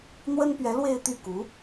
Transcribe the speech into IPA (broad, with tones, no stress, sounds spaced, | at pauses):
n̪ w ə˥ n p ɥ ɛ˧˥ l w e˥˧ ɪ̯ t̪ y˥˩ k u˧˥